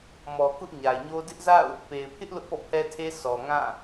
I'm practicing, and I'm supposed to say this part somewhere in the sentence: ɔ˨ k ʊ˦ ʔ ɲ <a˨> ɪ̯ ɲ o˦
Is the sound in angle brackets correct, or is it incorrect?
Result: correct